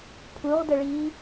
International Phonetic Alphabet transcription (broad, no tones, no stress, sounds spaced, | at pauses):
pʰ u ʁ d ə ɭ iː